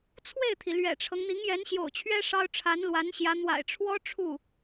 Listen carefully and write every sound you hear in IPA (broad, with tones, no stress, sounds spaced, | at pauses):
t͡sʰ w e˥˩ ɪ̯ t̪ʰ i˩ l ɥ ɛ̰˨˩ ʈ͡ʂʰ ɤ˦ ŋ n̪ i˧˥ ŋ j ɛ˧˥ n ɕ j o̰˨˩ ʊ̯ t͡ɕʰ ɥ ɛ˥ ʂ ɑ˥ ʊ̯ ʈ͡ʂʰ a˧˥ n l w a˧˥ n ɕ j ä˧˥ n̪ w a̰˨˩ ɪ̯ ʈ͡ʂʰ w ɔ˥ ʈ͡ʂʰ u˥˩